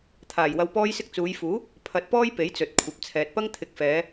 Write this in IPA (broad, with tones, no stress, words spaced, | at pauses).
t̪ʰaː˨˩jwɐ˧wpɔː˥jsɪ˥k̚ t͡suː˨˧jfuː˨˥ | pʰɐ˨˥t̚pɔː˥j pe˨˥jt͡sɵ˨t̚ kʷʰɐ˨p̚t͡sʰɛː˨t̚pɐ˥ŋ t̪ʰɪ˨˥k̚fɛː˨˧